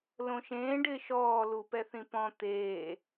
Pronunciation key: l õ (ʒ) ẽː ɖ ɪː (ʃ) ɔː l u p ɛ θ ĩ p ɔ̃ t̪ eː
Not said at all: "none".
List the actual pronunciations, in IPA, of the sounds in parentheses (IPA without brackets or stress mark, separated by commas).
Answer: ʃ, ʃ